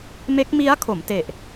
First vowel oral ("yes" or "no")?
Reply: yes